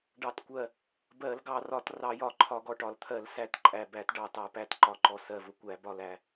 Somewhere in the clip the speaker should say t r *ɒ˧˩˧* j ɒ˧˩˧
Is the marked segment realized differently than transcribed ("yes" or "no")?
yes